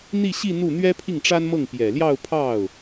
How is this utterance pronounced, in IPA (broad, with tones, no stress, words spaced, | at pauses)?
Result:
n̪i˥˧ɕi˥˧ n̪u˥˩ n̪ɥɛ˥pʰi˥˩ŋʈ͡ʂa˥nmɤ˥˩ŋ pjɛ˨˩ljɑ˥˧ʊ̯pʰɑ˥˩ʊ̯